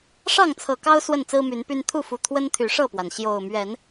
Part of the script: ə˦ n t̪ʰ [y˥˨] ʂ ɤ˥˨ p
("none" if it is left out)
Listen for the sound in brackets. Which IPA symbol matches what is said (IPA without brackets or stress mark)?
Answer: y˨˦